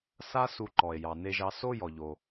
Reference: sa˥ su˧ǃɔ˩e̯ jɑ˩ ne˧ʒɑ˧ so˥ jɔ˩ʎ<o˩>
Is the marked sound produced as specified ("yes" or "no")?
yes